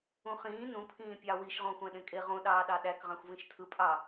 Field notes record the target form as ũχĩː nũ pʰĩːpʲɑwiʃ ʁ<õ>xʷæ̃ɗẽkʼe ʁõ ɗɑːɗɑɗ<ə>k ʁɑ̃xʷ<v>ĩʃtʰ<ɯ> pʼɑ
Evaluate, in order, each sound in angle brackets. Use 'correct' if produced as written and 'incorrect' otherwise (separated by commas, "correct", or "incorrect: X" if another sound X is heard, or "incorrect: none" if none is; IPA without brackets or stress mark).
correct, incorrect: æ, correct, correct